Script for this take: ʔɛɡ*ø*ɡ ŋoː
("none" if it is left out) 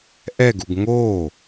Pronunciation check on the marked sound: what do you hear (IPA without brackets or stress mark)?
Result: u